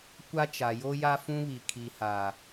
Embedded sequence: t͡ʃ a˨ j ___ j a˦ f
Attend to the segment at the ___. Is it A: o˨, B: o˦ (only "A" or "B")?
B